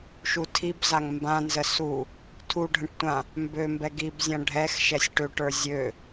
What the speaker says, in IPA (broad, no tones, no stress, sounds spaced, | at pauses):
ʃ u tʰ i b z a ŋ m b ã n z ə s u | tʰ u ɖʱ ə̃ ʈ tʷ ã | m b ø m b ɛ ɡ i b zʲ ã ɖʱ ɛ x ʃ ɛ sʲ ʈ ø ʈ ə˞ zʲ ø